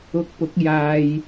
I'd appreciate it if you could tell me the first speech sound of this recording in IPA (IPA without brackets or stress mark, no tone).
ʊ